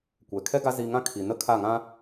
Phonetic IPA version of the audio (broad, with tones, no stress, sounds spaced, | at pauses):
kʷ ɛ˨ kʰ ɛ˦ ɡ a˦ z i˧ ŋ ã˦ kʰ i˨ n ə˦ kʰ a˦˨ ŋ ã˦